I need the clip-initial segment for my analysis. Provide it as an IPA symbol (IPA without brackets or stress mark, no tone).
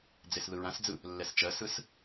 d͡z